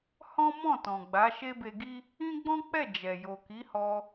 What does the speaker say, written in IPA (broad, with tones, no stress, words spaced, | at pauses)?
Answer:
hɔ̃˦mɔ̃˦˨tɔ̃˨ɡ͡ba˨˦ ʃe˦be˧ɡi˦ | ĩ˦ɡ͡bɔ̃˦k͡pɛ˦˨ d͡ʒɛ˨jo˨ ki˨˦hɔ˧